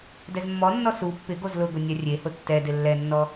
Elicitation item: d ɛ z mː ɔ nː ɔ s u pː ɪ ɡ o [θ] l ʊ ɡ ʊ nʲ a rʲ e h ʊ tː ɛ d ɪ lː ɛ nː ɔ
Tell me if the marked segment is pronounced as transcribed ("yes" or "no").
no